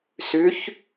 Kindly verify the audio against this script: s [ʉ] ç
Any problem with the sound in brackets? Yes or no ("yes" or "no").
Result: no